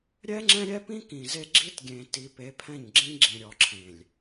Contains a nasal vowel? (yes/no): yes